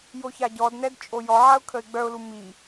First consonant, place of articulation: palatal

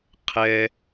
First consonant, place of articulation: uvular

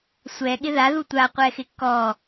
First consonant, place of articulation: alveolar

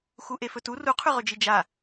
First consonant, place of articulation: velar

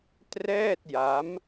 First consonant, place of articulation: alveolar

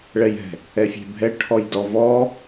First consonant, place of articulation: retroflex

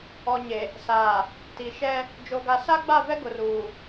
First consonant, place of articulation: palatal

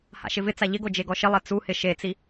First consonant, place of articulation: glottal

